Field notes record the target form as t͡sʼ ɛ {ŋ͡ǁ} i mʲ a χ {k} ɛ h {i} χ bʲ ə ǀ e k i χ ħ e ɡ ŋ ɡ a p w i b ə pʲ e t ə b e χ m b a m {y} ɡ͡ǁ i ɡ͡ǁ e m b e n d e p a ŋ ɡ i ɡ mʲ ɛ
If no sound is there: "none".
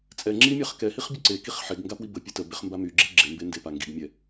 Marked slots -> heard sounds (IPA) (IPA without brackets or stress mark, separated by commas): ŋ͡ǁ, k, i, y